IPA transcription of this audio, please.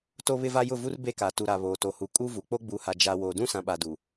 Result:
t o˦ β ɪ˦ v a˦ j ʊ˦˨ v u˦ r b e˦˨ k a˨ t u˨ ɾ a˨ β oː˨ t o˨ h u˨ kʼ u˦ v u˨ k͡p o˦ ɡ͡b u˨˦ h a˨ d͡ʒ a˨ w oː˨ d ũ˦ s ã˨ ɓ a˨ d u˨

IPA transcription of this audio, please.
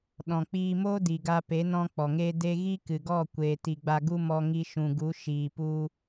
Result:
ɗ ɔ̃˨ k͡p iː˧ m o˦ d i˨ ɡ a˧ p e˨˦ n ɔ̃˦ k͡p ɔ˨ ŋ eː˦ d e˦ ɣ i˦ k ɨ˨ ɡ ɔ˦˨ kʷ eː˨ t i˨ ɡ͡b a˧ ɡ u˦ m ɔ˧ ŋ i˧ ʃ ũ˨ ɡ u˨˦ ʃ iː˨ p u˧

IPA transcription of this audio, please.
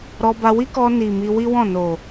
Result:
ɾ ɔ˧ b a˧ w i˦ k ɔ˧ n i˨ m i˧ w i˦ w ɔ̃˦˨ n o˨

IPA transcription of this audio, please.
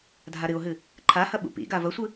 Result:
dʱ a ɾ ɨ o̯ ɦ ɨ | ǃʰ a h ɐ ɓ ṵ p ḭ ɡ a v ɐ sʷ ɨ

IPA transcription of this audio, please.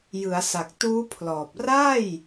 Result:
j ɯ˩˦ a̯ s a˨˩ k̚ t uː˦˥ pʰ l ɔː˨˩ p̚ r a˥˩ j

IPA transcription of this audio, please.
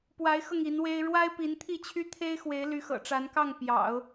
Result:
p w a˧˥ ɪ̯ x ɤ˧ ŋ i˧˥ n w e˥ ɪ̯ ɻ w a˥ ɪ̯ p i˧˥ n t̪ʰ i˥˩ t͡ɕʰ y˥ t̪ʰ e˥ ɪ̯ x w e˧˥ ɪ̯ l y˧˥ x ɤ̰˨˩ ʈ͡ʂ a˧˥ n k ɑ˥˩ ŋ p j ɑ̰˨˩˦ ʊ̯

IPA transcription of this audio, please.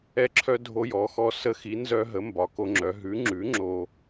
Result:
ɛ˦ ǁʰ œ˦ dʱ o˦ j ɔ˨˥ x ɔ˦ s ə˦ x i˨˥ n z œ˦ ɦ ə˨˥ m b ɒ˨˥ k o˦ ŋ͡ǁ œ˨˥ ɦ ʉ˨˥ ŋ͡ǁ ʉ˨˥ ŋ͡ǁ o˦

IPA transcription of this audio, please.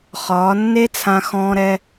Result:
χ ɒː˨˦ nː e˦ t͡sʰ ã˧ x ɔ̃ː˧ ɾ ɛ˧

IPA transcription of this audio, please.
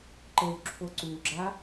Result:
ǃ ə w ǁʰ o ǀ u ɡ͡ǁ a

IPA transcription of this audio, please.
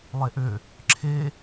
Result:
lˠ e ʔ ø | ǁʰ e

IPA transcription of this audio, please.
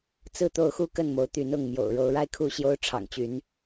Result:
t͡s ɹ̩˥˨ t̪ o˥˨ ʊ̯ x u˥˨ k ə˥˨ n m o˨˦ ʊ̯ t̪ y˨˦ n ʊ˥˨ ŋ m j o̰˨˩ ʊ̯ ɻ o˨˦ ʊ̯ ɻ a˦ ɪ̯ kʰ u˥˨ ɕ j o˦ ʊ̯ ʈ͡ʂʰ ɑ̰˨˩ ŋ t͡ɕ y˨˦ n

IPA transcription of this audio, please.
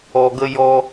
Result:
ɔ˧ ɡ ə˦ j ɔ˦

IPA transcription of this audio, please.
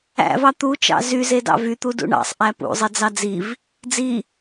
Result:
æ̰ v ɑ t̪ u t͡ʃ ɑ̰ z y z e d ɑ̰ v y t̪ u d ṵ ɳ ɑ̰ sˤ ʔ æ p ṵ zˤ e d͡z ɑ d͡z i v | d͡z i

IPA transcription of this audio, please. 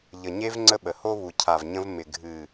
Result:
ʎ ə˨ ɲ e˧ v ŋ͡ǀ ə˦ ɓ ə˨ h o˦ β u˨ cʰ a˨ v ɲ ə̃˧ v m ɪ˨ ɡʱ ɨ˨

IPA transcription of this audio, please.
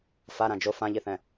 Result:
f a ɾ ã d͡ʒ o f ã ʎ i θ ɛ̃

